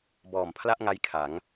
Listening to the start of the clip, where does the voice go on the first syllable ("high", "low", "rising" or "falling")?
low